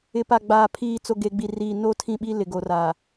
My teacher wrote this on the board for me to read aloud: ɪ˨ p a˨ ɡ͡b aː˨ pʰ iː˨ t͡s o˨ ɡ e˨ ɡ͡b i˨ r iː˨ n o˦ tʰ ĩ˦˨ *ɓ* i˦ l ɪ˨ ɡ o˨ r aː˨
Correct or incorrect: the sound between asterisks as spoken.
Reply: correct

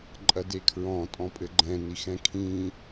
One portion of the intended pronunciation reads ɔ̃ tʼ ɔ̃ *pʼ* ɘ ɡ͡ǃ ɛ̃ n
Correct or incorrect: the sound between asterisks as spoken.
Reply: correct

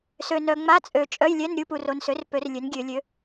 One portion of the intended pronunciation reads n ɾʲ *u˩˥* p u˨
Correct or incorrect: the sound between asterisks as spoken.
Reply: incorrect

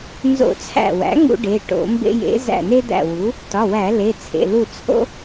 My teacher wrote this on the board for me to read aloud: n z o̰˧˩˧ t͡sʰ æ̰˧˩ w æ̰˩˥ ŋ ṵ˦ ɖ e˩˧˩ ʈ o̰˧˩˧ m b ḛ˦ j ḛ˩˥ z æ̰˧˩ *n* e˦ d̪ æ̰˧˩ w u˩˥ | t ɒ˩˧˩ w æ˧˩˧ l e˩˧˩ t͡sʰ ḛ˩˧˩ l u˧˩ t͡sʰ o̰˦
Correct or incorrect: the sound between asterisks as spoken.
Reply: correct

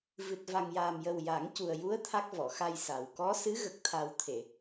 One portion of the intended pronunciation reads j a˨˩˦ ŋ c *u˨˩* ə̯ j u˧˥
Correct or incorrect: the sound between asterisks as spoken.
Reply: correct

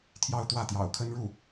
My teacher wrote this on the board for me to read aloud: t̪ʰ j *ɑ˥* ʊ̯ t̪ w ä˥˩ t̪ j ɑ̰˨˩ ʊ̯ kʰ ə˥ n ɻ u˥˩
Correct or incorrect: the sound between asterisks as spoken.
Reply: incorrect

